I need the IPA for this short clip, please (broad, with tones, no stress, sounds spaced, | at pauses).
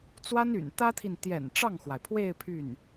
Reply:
t͡s w a˥ n y̰˨˩ n t̪ ä˥ t̪ʰ i˨ n t̪ j ɛ̰˨˩ n ʈ͡ʂ ɑ˥˩ ŋ x w a˩ ɪ̯ pʰ w e˥˧ ɪ̯ pʰ y˥˩ n